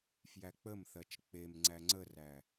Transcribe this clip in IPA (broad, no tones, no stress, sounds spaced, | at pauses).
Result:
f j æ k͡p ə m θ ɜ t͡ʃ k͡p e m ŋ͡ǀ æ ŋ͡ǀ ə r æ